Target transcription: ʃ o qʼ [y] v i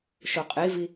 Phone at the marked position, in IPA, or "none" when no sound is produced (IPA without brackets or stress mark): i